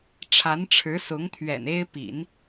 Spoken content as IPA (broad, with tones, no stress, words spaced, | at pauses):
ʈ͡ʂʰa˧˥nʈ͡ʂʰɻ̩˧˥sʊ˧˥ŋt̪ʰɥɛ̰˨˩n e˥ɪ̯ pḭ˨˩˦n